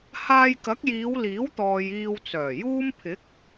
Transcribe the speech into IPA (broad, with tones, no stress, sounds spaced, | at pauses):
h aː˧ j k ɐ˨˥ k̚ j iː˨˧ w l iː˨˥ w t̪ ɔː˨ j iː˧ w t͡s œː˨˩ j uː˥ m pʰ ɪ˨˥ k̚